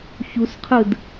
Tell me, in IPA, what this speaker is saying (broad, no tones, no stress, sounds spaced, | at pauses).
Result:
ç u s qʰ ɯ d